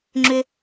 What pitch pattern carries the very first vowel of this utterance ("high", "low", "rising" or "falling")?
low